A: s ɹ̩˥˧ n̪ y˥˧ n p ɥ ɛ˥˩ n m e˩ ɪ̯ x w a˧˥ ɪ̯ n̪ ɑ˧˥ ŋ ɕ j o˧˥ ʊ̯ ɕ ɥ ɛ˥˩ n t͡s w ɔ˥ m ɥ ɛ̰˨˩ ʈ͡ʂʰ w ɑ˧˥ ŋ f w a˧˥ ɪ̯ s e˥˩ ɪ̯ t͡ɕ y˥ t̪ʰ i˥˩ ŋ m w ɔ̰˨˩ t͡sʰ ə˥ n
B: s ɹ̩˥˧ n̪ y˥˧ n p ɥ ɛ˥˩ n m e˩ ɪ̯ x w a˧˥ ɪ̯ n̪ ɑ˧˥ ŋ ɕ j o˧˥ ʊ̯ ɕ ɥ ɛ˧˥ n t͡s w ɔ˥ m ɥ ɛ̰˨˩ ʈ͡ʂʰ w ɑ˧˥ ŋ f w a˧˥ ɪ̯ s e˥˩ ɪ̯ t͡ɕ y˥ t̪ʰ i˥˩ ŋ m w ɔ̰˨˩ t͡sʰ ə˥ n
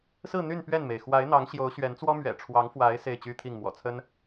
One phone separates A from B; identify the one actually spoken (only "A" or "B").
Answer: B